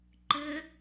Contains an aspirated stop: no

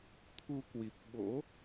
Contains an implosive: yes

